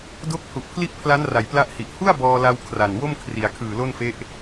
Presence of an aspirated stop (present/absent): present